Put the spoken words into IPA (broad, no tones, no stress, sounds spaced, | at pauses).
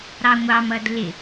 ɾ ɑ ŋʷ ɑ m ʌ d l ɪ